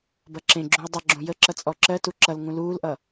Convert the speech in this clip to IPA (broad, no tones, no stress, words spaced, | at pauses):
bʌǁẽɡ͡ǁũə̯ dˤʌɡ͡ǁũ jəǁʌ t͡sʼɔǁɜtu ǁʌlŋũ luːlʔʌ